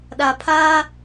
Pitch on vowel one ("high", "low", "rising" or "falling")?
low